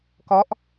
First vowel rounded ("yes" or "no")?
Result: yes